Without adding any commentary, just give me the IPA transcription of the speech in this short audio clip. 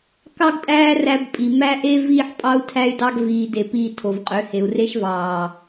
k ɑ˦ ɡ tʼ æː˦ r æ˧ b pʼ i˨ m æ˧ ʔ e˧ v iː˧ ħ pʼ ɑ˧ u̯ tʰ æ˧ y̯ d ɑ˧ ɡ v iː˨ d e˨ p iː˧ tʰ o˨ v qʼ ø˨˦ h e˨ u̯ r e˦ ʃ v ɑː˨

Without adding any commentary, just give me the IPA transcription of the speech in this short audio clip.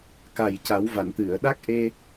k a˨˩ j c a˨˩˦ w v a˨˩˨ n t̪ ɨ˨˩˨ ə̯ ɗ a˦˥ k̚ ʔ e˧

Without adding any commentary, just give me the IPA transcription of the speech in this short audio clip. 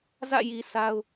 z ä̰˦˨ j i˨ sʰ a˦ ʊ̯

